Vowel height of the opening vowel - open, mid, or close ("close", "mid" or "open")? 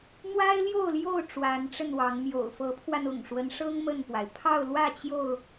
open